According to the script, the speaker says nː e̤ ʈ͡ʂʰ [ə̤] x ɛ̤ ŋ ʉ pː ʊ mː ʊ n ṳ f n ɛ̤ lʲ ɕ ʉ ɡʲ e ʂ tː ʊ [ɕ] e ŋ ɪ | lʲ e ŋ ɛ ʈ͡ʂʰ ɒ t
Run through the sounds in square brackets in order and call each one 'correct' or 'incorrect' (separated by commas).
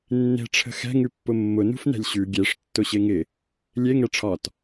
correct, correct